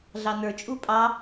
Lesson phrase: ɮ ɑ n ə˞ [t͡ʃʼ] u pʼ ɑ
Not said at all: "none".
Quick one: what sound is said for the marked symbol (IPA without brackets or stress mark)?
t͡ʃʼ